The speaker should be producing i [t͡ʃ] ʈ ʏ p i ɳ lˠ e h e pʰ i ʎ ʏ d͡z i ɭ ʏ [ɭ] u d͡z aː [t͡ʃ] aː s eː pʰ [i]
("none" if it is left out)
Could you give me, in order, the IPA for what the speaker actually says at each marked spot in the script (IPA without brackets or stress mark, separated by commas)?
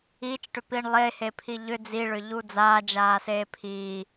t͡ʃ, ʎ, d͡ʒ, iː